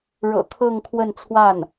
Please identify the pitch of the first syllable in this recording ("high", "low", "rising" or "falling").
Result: low